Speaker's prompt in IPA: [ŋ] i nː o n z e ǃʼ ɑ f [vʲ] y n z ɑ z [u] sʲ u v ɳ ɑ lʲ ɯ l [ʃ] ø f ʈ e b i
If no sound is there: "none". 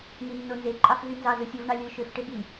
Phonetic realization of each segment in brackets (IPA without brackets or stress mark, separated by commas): ŋ, v, ɯ, ʃ